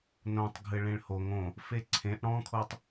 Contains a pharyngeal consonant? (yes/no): no